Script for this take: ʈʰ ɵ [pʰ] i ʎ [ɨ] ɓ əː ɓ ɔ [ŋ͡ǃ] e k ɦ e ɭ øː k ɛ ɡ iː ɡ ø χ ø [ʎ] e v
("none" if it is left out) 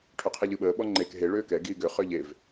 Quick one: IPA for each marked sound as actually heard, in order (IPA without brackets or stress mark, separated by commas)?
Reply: qʰ, ɨ, ŋ͡ǃ, ʎ